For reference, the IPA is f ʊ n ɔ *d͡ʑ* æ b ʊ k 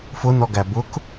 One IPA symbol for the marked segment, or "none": ɡ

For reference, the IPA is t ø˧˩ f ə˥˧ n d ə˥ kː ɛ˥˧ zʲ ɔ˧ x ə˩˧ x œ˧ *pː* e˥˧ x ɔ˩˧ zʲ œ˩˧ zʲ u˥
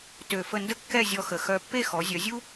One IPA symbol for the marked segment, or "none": pː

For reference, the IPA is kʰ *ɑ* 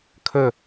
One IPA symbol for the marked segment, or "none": ə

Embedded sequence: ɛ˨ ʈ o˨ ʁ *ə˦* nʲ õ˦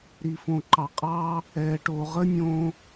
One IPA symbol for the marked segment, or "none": ə˦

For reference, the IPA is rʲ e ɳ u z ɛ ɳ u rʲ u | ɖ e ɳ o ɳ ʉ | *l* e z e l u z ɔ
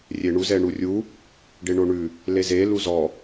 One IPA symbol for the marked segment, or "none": l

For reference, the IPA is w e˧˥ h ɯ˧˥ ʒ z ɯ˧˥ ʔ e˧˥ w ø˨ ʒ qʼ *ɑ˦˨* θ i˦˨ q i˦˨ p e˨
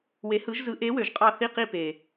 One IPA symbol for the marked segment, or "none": ɑ˦˨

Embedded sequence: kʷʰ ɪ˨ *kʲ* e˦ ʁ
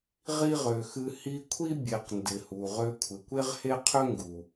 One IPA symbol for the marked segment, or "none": kʷ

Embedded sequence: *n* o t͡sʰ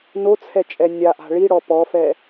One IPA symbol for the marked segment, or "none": n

